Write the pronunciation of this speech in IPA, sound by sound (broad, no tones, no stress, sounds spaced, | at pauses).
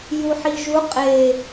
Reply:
j u ħ i ʒ u qʼ e